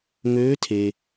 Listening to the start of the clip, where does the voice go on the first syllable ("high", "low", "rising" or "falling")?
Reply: rising